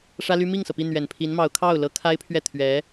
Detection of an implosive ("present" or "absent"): absent